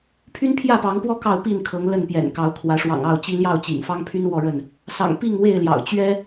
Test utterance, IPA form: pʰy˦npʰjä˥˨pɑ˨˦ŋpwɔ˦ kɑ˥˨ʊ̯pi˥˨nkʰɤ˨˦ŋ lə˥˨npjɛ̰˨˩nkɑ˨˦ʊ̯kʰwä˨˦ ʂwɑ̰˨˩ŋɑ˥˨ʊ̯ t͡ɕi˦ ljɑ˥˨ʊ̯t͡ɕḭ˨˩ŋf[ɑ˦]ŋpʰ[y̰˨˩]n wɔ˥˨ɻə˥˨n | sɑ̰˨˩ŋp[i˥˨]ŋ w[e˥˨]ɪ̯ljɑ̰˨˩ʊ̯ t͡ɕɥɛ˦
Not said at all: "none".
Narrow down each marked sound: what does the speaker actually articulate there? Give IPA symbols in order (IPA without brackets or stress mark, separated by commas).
ɑ˦, y˦, i˥˨, e˥˨